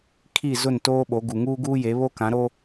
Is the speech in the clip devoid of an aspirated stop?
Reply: no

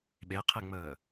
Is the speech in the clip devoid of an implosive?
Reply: no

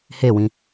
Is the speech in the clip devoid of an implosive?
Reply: yes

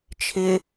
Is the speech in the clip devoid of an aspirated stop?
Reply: no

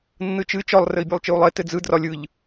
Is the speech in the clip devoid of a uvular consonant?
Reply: yes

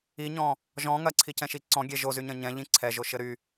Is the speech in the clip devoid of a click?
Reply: no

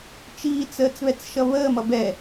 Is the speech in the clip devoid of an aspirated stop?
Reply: yes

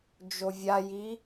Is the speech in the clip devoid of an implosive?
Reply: yes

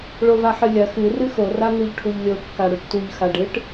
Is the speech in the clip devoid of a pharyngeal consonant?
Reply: no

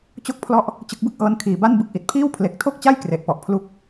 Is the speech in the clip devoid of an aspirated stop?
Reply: no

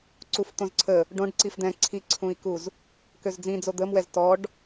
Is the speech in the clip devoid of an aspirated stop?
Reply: no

